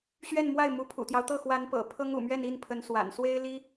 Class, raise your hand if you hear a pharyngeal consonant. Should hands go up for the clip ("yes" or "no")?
no